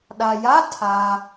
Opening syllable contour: low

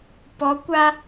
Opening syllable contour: rising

